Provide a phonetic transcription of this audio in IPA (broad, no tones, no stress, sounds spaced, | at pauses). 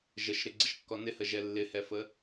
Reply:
ʒ ə ʃ ɾ ɪ ɡ͡ǀ ə ʃ kː ɔ n ɪ h ə ʒ ɛ lː ɪ h ɛ f ə